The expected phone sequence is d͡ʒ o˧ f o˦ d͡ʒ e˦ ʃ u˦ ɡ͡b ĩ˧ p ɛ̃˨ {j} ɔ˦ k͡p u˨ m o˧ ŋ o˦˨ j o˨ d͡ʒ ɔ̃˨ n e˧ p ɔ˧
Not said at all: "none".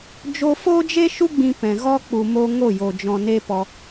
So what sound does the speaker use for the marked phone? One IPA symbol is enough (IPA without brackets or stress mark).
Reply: ɣ